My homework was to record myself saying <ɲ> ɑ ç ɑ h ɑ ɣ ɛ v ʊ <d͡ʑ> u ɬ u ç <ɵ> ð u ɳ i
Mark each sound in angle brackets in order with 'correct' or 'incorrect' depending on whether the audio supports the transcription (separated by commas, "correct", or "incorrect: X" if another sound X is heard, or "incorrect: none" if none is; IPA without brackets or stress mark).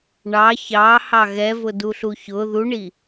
incorrect: ɳ, incorrect: d, incorrect: ʊ